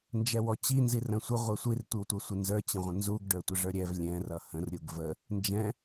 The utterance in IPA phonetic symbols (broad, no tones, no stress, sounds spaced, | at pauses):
n d͡ʒ ɛ w ɔ t͡ɕ i n z i r ə̃ sʷ ə ʁʷ ɛ sʷ i r tʷ i w tʷ ʌ sʷ ɪ n z ə˞ t͡ɕ ə̃ ʁʷ ə̃ n z u ɡ ɖ ə˞ tʷ ə ʐ ə˞ ɾʲ ɛ v lʲ ɛ̃ r ʌ h ə̃ r ɾʲ u ɡ v ə | n d͡ʒ ɛ̃